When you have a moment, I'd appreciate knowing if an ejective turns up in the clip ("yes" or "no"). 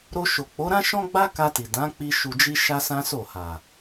no